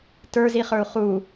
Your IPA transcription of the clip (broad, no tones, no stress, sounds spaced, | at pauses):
t ə˞ z i χ ə˞ u̯ χ u